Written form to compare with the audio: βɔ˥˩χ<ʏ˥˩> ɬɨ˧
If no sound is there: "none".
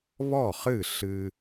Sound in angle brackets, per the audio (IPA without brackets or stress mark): ɨ˥˩